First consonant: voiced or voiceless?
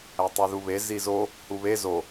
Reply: voiceless